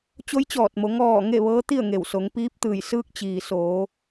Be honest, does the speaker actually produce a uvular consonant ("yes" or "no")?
no